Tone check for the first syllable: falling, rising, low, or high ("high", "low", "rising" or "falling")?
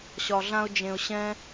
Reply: high